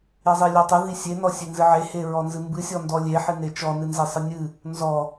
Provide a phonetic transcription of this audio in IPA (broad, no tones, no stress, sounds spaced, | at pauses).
e zˤ i lʲ ɔ tˤ ɨ ð i sʲ e n ɔ sʲ e n z ɨ ʕ e h e ɹ ɔ n z ɨ m b ɨ sʲ ɔ n d ɔ lʲ e ħ ɨ n e t͡ʃ ɔ n ɨ n z e sˤ ɨ nʲ ɨ | n z ɔ